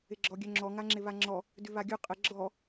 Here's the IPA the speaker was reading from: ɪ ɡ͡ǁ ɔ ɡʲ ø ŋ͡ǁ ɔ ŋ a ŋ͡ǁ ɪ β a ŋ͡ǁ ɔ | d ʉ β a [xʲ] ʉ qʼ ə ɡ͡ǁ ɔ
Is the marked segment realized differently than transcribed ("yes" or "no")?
yes